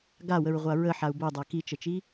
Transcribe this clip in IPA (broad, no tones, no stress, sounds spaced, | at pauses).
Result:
ɡ a w ə ɹ ʁʷ a ɹ ə ħ a u̯ b o dˤ a k i t͡ʃ ə t͡ʃ i